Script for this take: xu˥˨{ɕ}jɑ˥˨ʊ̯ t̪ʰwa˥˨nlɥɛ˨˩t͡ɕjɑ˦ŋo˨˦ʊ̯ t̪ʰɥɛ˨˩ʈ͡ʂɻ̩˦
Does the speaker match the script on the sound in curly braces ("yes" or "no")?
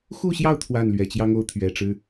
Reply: yes